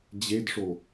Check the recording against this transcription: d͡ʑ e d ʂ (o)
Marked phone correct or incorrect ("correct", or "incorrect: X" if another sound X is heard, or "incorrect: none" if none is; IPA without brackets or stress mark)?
correct